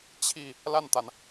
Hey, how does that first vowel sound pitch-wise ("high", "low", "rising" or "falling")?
falling